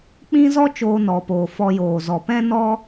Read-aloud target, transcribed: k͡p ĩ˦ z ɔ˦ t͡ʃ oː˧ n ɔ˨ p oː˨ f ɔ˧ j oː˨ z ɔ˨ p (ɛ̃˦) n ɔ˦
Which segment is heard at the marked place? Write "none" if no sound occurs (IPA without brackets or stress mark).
ɛ̃˦